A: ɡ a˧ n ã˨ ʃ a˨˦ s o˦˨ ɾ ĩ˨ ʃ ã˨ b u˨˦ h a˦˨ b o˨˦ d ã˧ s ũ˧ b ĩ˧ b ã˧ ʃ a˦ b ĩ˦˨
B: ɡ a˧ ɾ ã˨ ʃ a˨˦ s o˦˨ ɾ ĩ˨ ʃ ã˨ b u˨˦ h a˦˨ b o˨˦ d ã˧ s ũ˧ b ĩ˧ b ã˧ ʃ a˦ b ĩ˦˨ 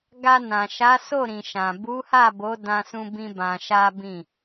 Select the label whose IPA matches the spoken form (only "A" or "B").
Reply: A